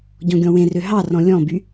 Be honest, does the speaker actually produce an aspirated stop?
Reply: no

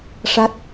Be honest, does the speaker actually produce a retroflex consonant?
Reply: yes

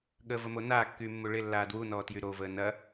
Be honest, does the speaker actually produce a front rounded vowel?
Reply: yes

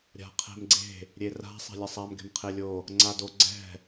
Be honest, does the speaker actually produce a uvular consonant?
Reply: yes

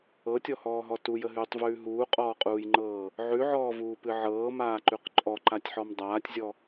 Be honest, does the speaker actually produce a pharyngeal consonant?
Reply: yes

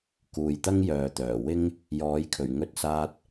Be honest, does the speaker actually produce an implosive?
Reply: no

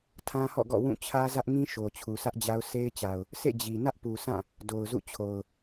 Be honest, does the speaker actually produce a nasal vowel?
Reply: yes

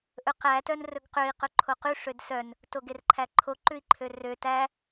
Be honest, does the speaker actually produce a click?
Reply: yes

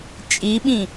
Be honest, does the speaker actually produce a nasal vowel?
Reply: yes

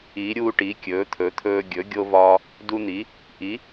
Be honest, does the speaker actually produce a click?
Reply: no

